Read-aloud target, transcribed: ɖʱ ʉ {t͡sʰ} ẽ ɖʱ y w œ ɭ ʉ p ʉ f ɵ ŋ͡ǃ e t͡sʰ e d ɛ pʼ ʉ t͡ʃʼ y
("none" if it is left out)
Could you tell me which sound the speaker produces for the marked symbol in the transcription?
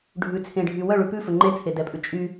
t͡sʰ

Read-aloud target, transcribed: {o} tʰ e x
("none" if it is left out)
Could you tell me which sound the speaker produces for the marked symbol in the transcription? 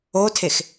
o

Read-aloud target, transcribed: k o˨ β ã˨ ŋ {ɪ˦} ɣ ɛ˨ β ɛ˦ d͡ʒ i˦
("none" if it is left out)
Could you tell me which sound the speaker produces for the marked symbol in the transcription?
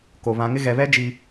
ɪ˦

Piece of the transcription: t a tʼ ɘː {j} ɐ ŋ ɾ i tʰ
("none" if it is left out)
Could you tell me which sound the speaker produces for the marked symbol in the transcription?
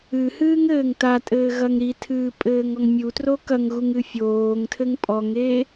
ɣ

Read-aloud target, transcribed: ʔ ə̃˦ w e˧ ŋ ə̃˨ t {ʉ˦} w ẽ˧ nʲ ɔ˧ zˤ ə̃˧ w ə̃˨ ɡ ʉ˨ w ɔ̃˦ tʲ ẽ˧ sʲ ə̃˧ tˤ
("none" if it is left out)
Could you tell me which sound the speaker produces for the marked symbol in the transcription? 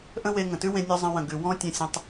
ʉ˦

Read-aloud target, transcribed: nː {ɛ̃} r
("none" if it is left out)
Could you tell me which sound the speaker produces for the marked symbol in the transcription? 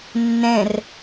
ɛ̃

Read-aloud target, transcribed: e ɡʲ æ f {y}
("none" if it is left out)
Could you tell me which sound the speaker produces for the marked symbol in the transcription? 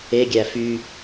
y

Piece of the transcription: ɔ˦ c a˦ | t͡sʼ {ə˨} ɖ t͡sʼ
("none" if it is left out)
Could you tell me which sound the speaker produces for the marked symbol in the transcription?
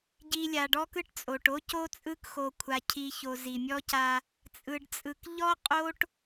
ɯ˨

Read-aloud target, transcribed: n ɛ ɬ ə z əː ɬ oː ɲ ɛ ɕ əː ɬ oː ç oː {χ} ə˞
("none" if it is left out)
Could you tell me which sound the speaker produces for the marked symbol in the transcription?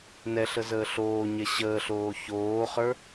χ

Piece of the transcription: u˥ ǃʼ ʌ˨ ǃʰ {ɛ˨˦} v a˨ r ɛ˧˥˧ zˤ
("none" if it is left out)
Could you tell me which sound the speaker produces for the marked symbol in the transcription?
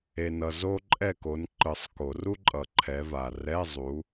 ɛ˨˦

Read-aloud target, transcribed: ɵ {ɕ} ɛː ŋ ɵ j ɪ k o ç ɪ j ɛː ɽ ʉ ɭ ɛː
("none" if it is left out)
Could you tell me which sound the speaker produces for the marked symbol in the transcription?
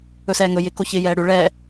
s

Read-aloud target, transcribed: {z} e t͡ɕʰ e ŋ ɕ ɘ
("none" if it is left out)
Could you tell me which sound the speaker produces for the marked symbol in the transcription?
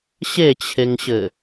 ɕ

